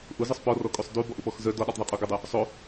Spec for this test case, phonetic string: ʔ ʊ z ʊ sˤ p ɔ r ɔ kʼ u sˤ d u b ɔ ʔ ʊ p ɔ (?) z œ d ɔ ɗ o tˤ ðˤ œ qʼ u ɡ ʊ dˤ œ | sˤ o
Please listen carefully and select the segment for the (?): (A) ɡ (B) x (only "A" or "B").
B